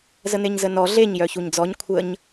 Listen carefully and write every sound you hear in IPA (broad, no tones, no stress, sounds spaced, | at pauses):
z ə n̪ e ɲ z ə n ɔ ɮ e ɲ j œ ç u ɲ d͡z ɔ ɲ kʷʰ ə ɲ